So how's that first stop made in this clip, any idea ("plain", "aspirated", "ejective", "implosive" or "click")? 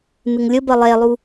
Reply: plain